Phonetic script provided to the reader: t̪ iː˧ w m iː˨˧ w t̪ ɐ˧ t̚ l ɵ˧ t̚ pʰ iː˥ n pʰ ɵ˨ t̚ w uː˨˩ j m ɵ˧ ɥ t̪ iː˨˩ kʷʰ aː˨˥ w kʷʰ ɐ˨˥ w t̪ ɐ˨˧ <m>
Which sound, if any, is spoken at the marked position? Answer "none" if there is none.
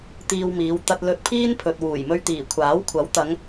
ŋ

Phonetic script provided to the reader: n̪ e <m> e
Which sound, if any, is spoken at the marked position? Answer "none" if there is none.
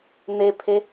pʰ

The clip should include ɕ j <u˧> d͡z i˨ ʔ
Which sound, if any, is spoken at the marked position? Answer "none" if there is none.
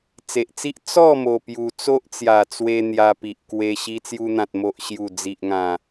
u˨˩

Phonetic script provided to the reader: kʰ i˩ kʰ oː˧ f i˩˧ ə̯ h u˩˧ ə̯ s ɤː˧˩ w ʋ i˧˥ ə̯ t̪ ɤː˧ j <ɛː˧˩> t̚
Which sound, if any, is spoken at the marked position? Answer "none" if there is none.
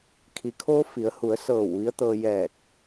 ɛː˧˩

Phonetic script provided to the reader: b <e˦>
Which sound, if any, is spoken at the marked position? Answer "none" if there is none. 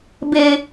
e˦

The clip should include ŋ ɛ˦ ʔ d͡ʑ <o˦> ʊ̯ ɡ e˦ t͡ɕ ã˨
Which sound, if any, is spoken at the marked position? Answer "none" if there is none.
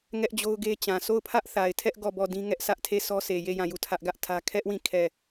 o˦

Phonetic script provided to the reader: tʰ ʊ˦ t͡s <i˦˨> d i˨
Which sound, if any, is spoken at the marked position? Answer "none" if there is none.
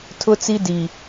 i˦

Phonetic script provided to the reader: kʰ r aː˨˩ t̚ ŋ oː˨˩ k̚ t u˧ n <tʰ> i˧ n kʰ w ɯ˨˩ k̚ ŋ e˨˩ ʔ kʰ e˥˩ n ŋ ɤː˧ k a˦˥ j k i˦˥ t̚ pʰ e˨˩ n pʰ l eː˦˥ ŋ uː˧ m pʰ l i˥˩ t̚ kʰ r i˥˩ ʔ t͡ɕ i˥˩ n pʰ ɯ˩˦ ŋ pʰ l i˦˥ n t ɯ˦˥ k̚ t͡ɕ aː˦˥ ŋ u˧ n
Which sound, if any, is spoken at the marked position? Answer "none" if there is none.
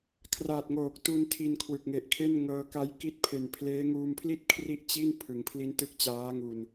tʰ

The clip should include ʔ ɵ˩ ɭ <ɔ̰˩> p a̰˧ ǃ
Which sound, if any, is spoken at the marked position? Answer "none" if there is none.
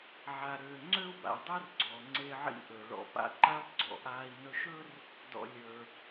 ɔ̰˩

